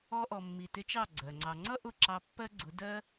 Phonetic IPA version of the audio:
ɔ˧ ʔ ɔ˨ mː i˨ t ɪ˧ t͡ʃ ɑ˦˨ ɡ͡ǀ ɜ˨ ŋ͡ǀ ɑ˧ ŋ͡ǀ ʌ˦ ʔ ʊ˦˨ ǁ ɑ˧ pː ɜ˦ ɡ͡ǀ ʊ˨˦ d ɜ˦

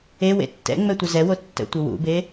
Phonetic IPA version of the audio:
e w ḛ tː ɛ̰ ŋ͡m ɛ tʷ ə z ɛ w o tː ə̰ tʷ ə w ṵ b e

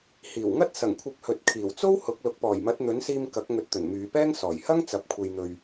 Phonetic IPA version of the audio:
h iː˨˩ w ŋ ɐ˥ t̚ s ɐ˨˩ ŋ kʷʰ ɐ˨˥ p̚ h ɵ˨ t̚ kʰ iː˨˩ w t͡s o˥ w h ʊ˨˥ k̚ l ʊ˨˥ k̚ p ɔː˨˩ j m ɐ˨˥ t̚ n̪ ɵ˨˥ n s iː˧ m k ɐ˨˥ k̚ ŋ ɵ˨˥ t̚ t̪ ɵ˨˩ n m yː˨˧ p ɛː˥ ŋ s ɔː˨˩ j h ɐ˥ ŋ t͡s ɐ˨ p̚ kʷʰ e˨ j n̪ ɵ˨ ɥ

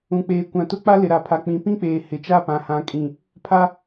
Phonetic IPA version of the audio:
ũ˨ k͡p eː˨ kʷ ã˨ t ʊ˦ k͡p a˦ l ɪ˨ ɾ a˨ pʰ a˨ k͡p ĩ˨˦ p ĩ˦ k͡p eː˨ h ɪ˨˦ t͡ʃ a˦˨ p ã˨ h ã˨ kʼ ĩ˨ | pʰ a˦

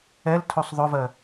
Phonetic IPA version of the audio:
ɛ l tʰ o sˤ ðˤ ʊ v ɜ

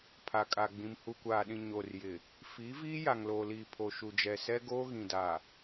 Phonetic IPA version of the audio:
pʰ a˨ kʼ a˨ ɡ͡b ĩ˨ m h u˨ kʷ aː˨ ɗ ĩ˨ ɲ o˨ r j ɪ˨ | f iː˨˦ v iː˦ j a˨ ŋ l oː˨ l iː˨ pʰ o˨ ʃ u˨ d͡ʒ ɛ˨ s ɛ˦ ɡ oː˦ ɣ ĩ˨ d a˨

